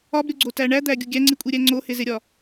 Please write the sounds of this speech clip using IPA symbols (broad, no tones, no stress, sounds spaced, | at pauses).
ɒ b ɾʲ o ɡ͡ǀ o t æ ɳ æ d̪ æ ɡʲ u ɡʲ æ ŋ͡ǀ i kʷʼ i ɾʲ æ ŋ͡ǀ o h e z e ɾʲ ɒ